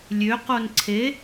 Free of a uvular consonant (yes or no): no